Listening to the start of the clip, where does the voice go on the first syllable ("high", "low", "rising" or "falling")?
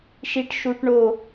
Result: high